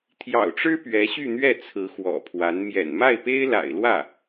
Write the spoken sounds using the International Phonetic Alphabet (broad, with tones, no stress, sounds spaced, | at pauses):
t̪ʰ j ɑ̰˨˩ ʊ̯ ʈ͡ʂ ɻ̩˥ p ɥ ɛ˧˥ ɕ y˥˧ n̪ ɥ ɛ˥˩ t͡sʰ ɹ̩˧˥ x w ɔ̰˨˩ pʰ w a˧˥ n m j ɛ̰˨˩ n m a˥˩ ɪ̯ p e˥ ɪ̯ l a̰˨˩ ɪ̯ l w ä˥˩